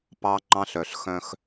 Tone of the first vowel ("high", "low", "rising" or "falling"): high